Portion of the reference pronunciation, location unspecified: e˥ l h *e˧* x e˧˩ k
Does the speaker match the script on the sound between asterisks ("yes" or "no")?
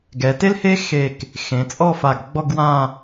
no